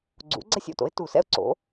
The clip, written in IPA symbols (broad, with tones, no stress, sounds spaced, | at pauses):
ɡ͡ǀ ṵ˩˥ ɡ͡ǀ ɛ˥˧ sʲ o̰˧˩ t o̰˩˥ ɪ̯ t u˧˩˧ s ɛ̰˥˧ ʊ̯ ǀ o̰˩˥